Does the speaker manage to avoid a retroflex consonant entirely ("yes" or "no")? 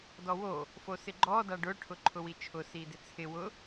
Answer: no